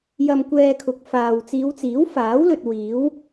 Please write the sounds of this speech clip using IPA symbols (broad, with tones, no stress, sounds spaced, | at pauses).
j ɐ˧ m kʷ ɛː˧ kʰ ʊ˨˥ k̚ f aː˨ w t͡s iː˨˧ w t͡s iː˨˥ w f aː˨˥ w l ɵ˨ t̚ w iː˨˥ w